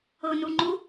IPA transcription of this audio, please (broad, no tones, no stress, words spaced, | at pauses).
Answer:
ɤnuŋ͡ǃu